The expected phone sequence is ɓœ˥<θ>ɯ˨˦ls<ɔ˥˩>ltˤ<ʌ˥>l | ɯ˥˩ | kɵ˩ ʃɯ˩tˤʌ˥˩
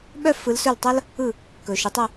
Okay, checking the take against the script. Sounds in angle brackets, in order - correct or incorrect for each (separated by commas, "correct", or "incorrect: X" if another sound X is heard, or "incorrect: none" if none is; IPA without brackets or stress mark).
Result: incorrect: f, incorrect: ɵ˥˩, correct